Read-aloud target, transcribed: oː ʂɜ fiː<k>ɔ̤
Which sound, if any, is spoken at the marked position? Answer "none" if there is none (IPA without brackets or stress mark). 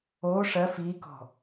k